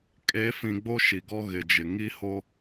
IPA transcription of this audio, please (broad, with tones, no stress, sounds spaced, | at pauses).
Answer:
kʼ e˨˦ f ĩ˨ ɡ͡b o˦ ʃ i˨ ɡ ɔ˦ ɣ ɪ˨ d͡ʒ ɪ˨ ŋ i˦ h o˦